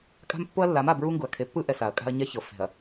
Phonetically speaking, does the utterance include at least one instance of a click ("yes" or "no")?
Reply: no